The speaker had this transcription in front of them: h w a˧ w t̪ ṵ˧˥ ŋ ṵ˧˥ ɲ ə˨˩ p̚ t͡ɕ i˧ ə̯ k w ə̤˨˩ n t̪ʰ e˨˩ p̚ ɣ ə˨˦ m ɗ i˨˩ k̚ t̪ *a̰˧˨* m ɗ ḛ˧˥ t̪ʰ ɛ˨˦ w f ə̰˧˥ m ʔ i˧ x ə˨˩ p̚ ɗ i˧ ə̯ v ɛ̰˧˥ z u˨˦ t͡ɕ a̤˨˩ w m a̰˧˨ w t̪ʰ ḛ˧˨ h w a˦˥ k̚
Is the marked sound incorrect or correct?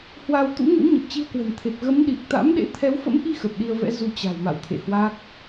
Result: incorrect